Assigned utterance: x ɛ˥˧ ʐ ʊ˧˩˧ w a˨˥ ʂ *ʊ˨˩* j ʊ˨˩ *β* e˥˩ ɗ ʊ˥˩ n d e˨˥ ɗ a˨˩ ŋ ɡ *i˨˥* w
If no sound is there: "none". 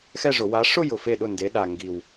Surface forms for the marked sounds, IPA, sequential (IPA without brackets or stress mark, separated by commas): ʊ˥˧, f, i˨˩